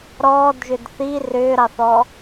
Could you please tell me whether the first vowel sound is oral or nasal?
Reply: oral